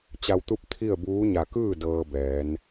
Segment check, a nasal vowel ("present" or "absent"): absent